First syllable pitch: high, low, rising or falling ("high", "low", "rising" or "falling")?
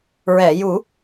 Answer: low